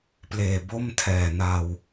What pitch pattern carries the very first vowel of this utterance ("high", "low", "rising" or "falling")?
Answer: low